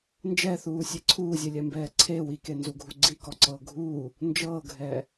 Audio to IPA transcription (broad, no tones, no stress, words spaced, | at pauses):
nd͡ʒɛθuːsʲe ǀʰuːzʲelʲɛmbɛː ǀʰe wikenzuɡʱu ɡ͡ǀikɔǀɤː ɡʱuː | nd͡ʒɤːɡʱɛː